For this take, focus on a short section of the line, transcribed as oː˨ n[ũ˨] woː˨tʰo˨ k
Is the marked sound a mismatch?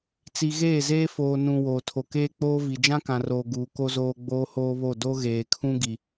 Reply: no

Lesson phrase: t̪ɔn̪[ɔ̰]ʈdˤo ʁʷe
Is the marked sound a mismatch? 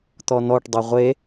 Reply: yes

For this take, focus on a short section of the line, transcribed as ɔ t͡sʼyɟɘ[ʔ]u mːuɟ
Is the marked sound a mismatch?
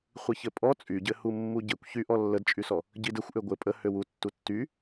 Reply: yes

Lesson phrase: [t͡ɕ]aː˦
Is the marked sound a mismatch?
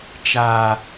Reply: yes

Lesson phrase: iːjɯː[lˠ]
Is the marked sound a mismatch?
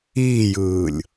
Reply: yes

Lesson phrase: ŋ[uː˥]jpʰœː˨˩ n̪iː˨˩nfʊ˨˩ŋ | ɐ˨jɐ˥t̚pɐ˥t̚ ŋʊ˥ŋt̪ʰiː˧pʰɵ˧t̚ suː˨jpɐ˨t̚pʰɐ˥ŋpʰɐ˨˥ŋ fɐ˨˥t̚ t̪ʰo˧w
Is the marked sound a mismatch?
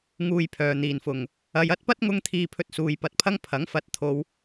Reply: yes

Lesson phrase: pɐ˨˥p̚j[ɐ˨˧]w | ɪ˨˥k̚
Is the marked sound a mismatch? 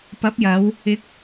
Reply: no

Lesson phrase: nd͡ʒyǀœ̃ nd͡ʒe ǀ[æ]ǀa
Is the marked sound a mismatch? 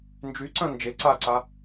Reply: yes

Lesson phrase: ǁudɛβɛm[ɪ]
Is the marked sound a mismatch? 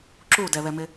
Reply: no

